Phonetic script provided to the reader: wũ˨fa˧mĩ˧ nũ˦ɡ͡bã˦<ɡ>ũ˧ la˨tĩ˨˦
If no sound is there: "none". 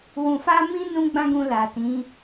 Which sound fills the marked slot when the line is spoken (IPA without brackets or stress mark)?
ɡ